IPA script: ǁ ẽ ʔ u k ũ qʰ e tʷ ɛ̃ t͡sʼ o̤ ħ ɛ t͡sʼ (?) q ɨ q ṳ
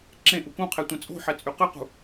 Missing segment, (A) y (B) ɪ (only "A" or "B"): A